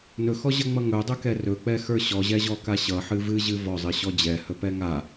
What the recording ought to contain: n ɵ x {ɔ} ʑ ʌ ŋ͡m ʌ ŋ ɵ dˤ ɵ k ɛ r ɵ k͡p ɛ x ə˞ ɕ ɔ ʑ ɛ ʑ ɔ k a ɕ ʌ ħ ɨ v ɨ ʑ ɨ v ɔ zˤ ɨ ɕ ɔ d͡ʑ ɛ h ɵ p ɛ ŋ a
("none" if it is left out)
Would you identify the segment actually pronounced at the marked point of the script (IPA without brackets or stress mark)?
ɔ